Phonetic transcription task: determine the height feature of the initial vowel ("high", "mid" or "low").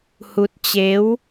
high